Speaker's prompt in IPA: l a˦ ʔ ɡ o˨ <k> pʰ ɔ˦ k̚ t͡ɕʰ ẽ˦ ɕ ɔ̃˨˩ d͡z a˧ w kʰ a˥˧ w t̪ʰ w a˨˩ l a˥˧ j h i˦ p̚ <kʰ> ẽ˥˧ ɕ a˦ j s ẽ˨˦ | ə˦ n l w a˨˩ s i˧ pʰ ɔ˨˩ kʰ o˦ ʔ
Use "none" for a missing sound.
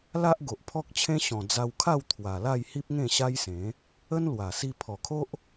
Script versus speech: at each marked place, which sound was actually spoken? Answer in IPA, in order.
ʔ, ŋ

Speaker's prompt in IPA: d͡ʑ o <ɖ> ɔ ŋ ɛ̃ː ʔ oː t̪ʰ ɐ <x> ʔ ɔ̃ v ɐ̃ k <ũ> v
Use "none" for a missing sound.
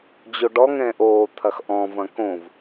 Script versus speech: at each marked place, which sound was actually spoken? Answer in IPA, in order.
ɖ, x, õ

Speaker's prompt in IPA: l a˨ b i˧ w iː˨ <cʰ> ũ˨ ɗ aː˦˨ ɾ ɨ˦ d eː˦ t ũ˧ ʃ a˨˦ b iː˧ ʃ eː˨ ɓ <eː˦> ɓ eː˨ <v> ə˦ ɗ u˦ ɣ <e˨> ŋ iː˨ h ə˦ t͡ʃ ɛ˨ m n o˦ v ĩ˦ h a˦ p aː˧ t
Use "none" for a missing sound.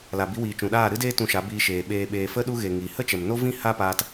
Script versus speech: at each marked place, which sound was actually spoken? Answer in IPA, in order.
t͡ʃ, eː˨, f, e˨

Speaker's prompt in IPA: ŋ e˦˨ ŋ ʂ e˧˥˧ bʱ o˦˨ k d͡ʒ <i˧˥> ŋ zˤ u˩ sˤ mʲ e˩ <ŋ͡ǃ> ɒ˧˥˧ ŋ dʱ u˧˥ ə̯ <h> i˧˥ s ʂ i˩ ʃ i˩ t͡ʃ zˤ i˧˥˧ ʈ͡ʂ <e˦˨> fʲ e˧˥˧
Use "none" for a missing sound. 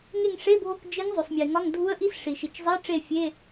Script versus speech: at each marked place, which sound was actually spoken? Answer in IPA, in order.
i˧˥, ŋ, ʔ, e˦˨

